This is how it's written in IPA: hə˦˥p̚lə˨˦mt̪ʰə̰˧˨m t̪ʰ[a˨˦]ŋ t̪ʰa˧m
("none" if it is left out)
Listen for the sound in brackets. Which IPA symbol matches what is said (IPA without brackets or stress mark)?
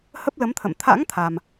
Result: a̰˧˥